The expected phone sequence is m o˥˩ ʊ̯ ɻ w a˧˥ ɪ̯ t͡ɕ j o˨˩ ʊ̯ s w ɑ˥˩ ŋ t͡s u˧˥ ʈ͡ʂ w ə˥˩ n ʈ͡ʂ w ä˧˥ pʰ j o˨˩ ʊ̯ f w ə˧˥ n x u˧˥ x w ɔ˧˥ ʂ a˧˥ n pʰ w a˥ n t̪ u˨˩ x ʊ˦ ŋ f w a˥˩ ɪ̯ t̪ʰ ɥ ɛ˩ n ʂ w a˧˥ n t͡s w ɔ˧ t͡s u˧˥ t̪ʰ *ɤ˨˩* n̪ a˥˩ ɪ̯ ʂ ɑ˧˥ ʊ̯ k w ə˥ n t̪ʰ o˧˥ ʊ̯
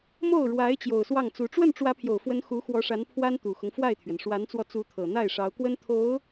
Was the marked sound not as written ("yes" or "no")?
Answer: no